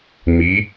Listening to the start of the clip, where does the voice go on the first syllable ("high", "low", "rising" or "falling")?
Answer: rising